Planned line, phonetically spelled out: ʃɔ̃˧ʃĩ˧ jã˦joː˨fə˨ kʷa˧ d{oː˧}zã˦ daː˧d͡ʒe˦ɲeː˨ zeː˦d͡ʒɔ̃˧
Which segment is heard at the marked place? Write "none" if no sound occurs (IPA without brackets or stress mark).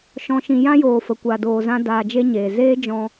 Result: oː˧